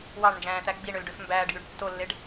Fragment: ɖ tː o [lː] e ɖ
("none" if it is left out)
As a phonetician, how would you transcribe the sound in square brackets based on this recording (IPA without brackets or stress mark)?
lː